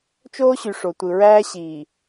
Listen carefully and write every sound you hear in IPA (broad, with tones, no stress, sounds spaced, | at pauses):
t͡ʃ oː˦ ɕ y˨ ʂ o˨ tʷ ɯ˨ ɹ æː˦ ɕ iː˨